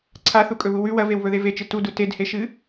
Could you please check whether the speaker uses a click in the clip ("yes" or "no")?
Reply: yes